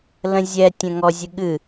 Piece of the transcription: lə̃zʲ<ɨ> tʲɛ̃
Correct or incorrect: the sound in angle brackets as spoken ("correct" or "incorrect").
incorrect